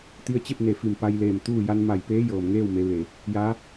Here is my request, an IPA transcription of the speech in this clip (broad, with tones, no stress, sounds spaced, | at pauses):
t̪ i˧ ə̯ t͡ɕ e˥˨ p̚ n e˧˩ f i˧˩ m p a˧ j l eː˧˩ m t̪ uː˥˨ j a˧ n m a˧˩ j p eː˧˥ j ɤː˩ m ŋ eː˥˨ w m e˩˧ ʋ e˩ | j aː˧˥